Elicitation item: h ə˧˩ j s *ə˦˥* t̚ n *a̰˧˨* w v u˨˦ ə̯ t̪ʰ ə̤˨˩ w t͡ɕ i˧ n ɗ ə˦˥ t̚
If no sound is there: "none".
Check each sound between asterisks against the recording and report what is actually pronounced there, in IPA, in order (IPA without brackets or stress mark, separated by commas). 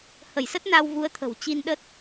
ə˦˥, a˧